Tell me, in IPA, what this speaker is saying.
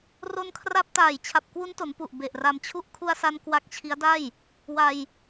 r o˧ n kʰ r a˦˥ p̚ t aː˨˩ j t͡ɕʰ a˨˩ p̚ k w u˦˥ n t o˩˦ n p u˨˩ ʔ b e˨˩ ʔ r a˧ m t͡ɕʰ u˥˩ ʔ kʰ u˧ a̯ s a˧ n k w a˦˥ k̚ t͡ɕʰ i˦˥ a̯ d a˥˩ j | w a˧ j

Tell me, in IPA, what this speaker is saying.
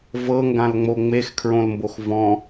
v ɤ ŋ ɡ ã l ŋ͡m o ŋ͡m e x kʰ ɹ õ l m b o x v ɔ̃

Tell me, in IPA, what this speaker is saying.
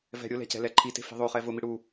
v ɛ̤ ɾʲ ʊ l ɛ̤ c ɛ̤ l ɛ ǃʰ i t e̤ f i̤ ðˤ o χ ɛ v ʊ m i ɽ u

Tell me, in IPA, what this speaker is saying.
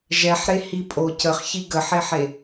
ʒ ɛ ħ ɾ e h i pʼ o c ə χ ç i ɡ ə ħ e ħ e

